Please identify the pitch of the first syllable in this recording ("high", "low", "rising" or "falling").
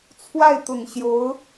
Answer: falling